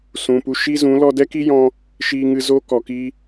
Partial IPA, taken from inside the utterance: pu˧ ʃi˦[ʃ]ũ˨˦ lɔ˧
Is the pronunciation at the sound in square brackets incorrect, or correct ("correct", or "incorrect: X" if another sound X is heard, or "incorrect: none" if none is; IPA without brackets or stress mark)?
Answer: incorrect: z